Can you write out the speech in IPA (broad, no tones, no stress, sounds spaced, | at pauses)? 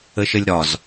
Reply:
ə ʃ ə lʲ ɾ ɒ z